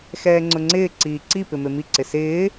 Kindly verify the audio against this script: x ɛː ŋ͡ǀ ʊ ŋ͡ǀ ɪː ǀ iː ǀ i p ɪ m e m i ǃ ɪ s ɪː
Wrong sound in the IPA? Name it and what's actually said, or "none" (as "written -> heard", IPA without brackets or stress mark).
ǃ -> ǀ